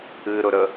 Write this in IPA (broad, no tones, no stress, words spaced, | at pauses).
ɨɾʊɾə